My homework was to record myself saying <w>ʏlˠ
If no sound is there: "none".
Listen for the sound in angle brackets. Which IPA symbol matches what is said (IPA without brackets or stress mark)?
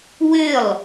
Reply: w